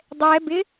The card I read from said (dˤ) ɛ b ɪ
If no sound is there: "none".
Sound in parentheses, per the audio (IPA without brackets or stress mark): dˤ